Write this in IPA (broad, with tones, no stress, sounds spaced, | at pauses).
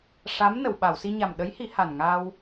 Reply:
ʂ a˧˥ m n ə˨˩˨ w ɓ a˨˩˨ w s i˧ ɲ a˨˩ m ɗ ə˧˥ j h i˨˩˦ h a˨˩ n ŋ aː˧ w